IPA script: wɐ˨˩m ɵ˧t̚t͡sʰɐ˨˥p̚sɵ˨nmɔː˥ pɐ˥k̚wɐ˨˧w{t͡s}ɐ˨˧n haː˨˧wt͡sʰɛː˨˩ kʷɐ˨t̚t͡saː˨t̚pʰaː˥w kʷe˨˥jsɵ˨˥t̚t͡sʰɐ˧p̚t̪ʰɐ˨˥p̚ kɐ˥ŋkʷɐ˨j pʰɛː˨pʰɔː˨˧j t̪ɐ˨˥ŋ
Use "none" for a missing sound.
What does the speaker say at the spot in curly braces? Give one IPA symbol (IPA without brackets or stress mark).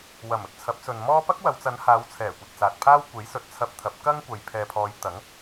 t͡s